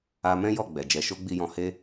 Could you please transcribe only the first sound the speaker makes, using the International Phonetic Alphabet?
a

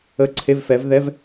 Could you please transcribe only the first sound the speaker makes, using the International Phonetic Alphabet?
ə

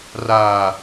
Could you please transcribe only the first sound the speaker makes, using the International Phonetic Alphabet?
r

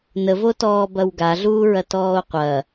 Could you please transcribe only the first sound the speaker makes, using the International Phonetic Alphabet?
n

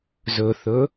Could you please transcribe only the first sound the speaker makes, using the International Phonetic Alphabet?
z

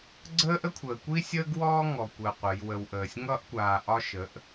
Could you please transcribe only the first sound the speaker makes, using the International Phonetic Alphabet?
ɡ͡ǀ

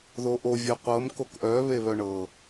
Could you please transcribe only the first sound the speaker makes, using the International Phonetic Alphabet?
ð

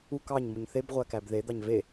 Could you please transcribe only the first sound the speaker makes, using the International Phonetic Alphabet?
u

